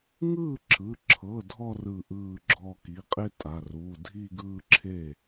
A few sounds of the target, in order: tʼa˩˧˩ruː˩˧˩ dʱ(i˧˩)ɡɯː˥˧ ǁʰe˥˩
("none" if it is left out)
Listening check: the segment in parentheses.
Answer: i˥˧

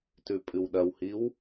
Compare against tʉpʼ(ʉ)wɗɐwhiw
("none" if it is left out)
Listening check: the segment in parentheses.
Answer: ɨ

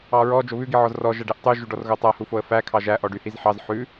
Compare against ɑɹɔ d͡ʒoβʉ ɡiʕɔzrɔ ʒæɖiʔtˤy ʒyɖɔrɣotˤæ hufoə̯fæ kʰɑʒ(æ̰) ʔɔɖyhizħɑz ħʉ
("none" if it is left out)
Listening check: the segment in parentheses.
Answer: æ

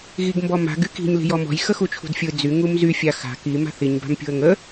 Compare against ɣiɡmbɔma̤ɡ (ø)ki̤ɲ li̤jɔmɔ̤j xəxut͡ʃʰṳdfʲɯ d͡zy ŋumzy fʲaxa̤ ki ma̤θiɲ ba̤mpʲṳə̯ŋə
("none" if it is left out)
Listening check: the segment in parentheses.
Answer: y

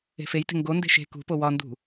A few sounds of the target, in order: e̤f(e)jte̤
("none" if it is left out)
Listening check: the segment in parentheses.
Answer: e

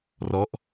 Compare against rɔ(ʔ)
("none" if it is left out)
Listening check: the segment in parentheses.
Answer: ʔ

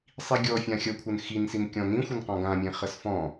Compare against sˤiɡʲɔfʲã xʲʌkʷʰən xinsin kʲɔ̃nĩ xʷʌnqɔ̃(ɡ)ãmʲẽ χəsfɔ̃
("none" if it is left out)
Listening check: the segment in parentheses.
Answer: ɡ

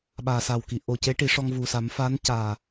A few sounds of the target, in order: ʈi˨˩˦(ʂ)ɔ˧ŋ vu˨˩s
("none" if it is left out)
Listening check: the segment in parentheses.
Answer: ʂ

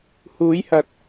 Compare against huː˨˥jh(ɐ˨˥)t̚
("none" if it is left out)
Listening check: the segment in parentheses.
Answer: ɐ˨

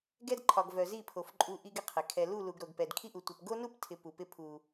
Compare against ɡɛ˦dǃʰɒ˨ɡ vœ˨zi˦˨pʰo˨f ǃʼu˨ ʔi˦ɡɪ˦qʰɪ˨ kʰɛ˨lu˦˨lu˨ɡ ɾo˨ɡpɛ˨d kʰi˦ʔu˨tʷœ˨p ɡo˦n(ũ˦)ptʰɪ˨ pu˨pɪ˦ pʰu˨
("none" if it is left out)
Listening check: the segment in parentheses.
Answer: u˦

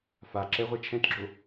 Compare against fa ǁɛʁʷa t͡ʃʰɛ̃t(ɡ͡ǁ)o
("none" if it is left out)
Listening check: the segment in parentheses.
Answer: ɡ͡ǁ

